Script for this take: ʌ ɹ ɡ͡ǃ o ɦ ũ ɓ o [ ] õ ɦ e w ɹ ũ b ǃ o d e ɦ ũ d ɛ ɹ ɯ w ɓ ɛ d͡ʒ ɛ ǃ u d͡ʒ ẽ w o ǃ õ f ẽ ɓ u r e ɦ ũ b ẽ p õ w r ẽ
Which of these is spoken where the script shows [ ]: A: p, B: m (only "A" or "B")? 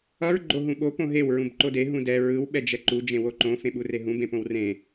A